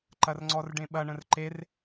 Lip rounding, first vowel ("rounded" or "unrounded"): unrounded